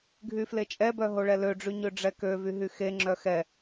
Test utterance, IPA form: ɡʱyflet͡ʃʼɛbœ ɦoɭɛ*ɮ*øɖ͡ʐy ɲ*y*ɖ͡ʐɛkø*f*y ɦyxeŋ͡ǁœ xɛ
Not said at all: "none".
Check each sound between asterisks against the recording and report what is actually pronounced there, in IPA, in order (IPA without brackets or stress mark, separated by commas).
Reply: l, ø, v